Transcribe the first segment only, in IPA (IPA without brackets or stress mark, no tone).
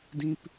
d